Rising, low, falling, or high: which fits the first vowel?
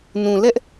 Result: low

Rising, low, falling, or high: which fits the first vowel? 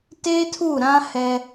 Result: high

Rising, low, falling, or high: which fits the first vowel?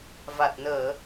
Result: low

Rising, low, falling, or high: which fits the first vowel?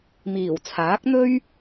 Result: low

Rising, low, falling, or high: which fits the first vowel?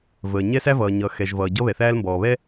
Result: low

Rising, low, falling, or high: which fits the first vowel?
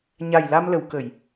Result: low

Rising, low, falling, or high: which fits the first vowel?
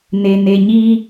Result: low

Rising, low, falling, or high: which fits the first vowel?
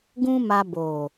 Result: high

